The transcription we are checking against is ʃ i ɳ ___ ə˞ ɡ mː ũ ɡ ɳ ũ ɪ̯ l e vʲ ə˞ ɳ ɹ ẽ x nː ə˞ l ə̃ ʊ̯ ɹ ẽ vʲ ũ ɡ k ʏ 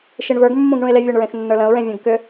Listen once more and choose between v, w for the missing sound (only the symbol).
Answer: v